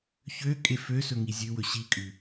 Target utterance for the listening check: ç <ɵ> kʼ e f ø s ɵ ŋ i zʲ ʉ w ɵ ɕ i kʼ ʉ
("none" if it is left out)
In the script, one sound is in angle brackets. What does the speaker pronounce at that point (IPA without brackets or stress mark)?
ø